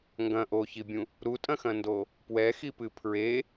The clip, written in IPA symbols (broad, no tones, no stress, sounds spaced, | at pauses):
ŋ ɡ ɐ̃ ʔ o ç i bʲ ũ | ɾ u tʼ ɐ̃ x ɐ̃ n d o | p w ɛ x i p ɨ pʰ ɹ e